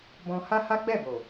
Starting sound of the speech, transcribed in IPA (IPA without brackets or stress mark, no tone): b